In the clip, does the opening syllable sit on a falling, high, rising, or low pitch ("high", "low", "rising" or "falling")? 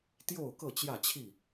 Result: falling